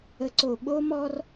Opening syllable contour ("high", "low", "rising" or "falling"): low